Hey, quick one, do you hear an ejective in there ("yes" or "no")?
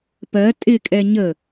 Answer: yes